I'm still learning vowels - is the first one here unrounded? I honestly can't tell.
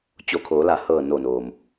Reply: no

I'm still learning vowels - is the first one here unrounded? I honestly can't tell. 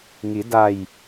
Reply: yes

